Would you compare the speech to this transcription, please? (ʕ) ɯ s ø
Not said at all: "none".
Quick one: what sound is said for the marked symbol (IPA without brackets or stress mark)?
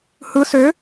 h